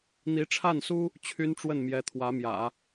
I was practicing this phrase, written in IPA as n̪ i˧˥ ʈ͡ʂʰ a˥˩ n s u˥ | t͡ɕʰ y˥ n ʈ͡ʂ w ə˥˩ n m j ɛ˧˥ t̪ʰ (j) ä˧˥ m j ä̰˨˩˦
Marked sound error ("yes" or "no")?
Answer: yes